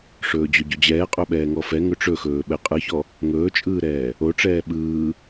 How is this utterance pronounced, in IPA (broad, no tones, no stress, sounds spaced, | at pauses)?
ʂ ɵː d͡ʑ ɵ ɟ ɵ d͡ʑ ɛː qʼ ɵ ɓ ɛː ŋ ɔ f ɛ ŋ ɵ ʈ͡ʂ ɵ x ɵː ɓ ɛ qʼ ɯ ç ɔ | ŋ ɵː t͡ʃʼ ɯː ɾ ɛː | o ʈ͡ʂ ɛː ɓ ɯː